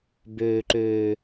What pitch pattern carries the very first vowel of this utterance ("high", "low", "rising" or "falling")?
low